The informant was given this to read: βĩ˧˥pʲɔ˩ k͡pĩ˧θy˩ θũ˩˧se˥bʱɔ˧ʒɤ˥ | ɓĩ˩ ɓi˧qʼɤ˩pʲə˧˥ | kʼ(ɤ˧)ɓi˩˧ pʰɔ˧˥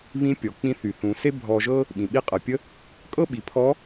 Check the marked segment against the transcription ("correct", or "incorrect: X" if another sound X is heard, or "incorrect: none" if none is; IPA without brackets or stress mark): incorrect: ɤ˥